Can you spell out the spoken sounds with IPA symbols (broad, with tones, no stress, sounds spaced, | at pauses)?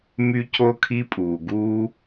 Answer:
m y˦ c o˦ kʰ i˦ pʼ uː˩ ɡ uː˦